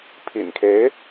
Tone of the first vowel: low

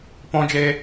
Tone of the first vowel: high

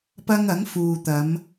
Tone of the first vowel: high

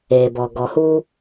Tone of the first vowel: low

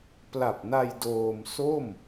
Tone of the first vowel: low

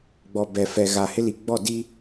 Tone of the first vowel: low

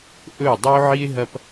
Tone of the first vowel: falling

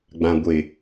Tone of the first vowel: low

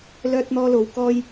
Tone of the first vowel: high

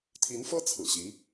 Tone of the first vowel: rising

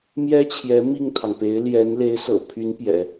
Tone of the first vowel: high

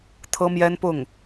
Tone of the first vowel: high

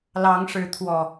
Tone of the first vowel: rising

